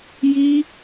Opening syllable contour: high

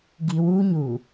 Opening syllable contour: low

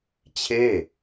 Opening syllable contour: falling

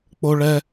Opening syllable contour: high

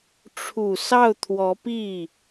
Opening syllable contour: low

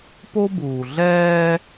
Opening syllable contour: high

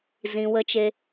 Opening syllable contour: low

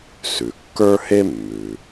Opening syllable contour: low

